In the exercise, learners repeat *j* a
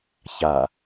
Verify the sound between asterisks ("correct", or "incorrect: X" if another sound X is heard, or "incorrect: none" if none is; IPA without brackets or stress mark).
incorrect: ç